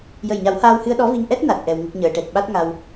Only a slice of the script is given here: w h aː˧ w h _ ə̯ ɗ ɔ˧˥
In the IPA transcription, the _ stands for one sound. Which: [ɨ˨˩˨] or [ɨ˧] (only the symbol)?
ɨ˧